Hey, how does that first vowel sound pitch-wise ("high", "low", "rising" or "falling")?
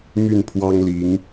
falling